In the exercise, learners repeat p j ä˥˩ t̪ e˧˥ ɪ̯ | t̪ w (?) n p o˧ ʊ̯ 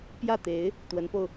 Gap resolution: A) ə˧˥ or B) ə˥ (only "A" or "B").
A